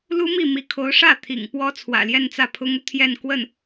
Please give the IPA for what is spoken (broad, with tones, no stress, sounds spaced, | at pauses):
l u˥ m i˥˩ m i˧˥ kʰ o˧˥ ʊ̯ ʂ ä˥˩ t̪ʰ ḭ˨˩ ŋ p w ɔ˥ t͡sʰ w ä̰˨˩ l j ɛ˥˧ n t͡s ä˥˩ pʰ ʊ˥ ŋ u˨ t̪ʰ j ɛ˥˧ n k w ə˥˩ n